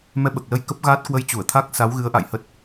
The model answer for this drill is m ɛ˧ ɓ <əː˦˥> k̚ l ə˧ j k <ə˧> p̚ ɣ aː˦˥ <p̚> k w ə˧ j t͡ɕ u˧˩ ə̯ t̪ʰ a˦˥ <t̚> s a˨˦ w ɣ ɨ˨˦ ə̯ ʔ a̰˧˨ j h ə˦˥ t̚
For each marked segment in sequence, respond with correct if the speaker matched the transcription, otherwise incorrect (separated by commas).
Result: incorrect, incorrect, incorrect, incorrect